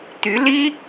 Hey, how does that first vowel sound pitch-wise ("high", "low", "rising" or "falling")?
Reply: rising